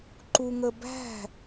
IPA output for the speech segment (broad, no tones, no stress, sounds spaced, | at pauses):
ǃ u ŋ ə b æ̤